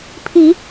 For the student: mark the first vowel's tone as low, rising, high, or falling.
rising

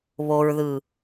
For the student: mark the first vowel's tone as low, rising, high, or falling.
low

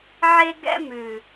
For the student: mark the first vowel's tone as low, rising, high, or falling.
high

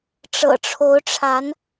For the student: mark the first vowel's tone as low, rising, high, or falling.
low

